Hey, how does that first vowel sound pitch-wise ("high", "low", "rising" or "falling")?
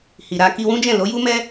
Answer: low